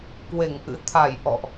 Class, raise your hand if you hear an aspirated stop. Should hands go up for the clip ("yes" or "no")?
yes